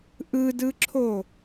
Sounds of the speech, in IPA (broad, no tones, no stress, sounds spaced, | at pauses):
ʔ ɯ d ɯ ǁʰ o